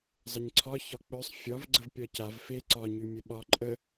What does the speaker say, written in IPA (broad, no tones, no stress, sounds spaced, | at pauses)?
zˤ ə ɲ ǀʰ ɒ ç ɒ k͡p œ sˤ fʲ ɒ v ɡ͡ǀ ə v pʲ ɒ c a v f e ǀ ɒ ɲ y mʲ ə ɓ ɒ ǃʼ ə